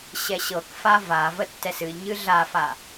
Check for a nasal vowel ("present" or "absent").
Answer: absent